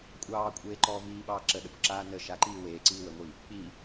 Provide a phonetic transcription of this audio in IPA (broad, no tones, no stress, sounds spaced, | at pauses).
kʷʼ ɑː kʷʼ eː ǃ ɔː v iː ɓ ɑː ǁ ə ɗ ə kʷ ǁ aː n ə ʃ a ǃ iː w eː ǀ iː w ə ŋʷ i | k͡p i